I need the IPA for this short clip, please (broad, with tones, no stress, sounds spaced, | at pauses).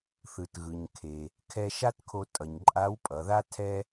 θ ɯ˩ t ɣ ɯ˩ ɲ kʰ e˩ | kʰ ɛ˧ ʃ a˥ t kʰ o˧ tʼ ʌ˩ ɲ ǃʼ a˧˥ w pʼ ʌ˩˧ ð a˥ tʰ ɛ˥